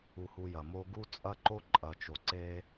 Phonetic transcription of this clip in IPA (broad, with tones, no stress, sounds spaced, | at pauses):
u˧ h u˧ j ɐ˨ m o˦ ɡ u˦ t͡sʼ ɐ˦ ǃ o˦ ǃʼ ɐ˨ t͡ʃ o˨ ǀ e˧